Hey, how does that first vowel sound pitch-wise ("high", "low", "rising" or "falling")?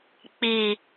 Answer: low